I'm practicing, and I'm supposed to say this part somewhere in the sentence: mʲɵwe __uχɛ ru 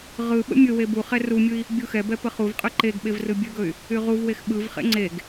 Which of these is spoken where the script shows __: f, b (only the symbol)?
b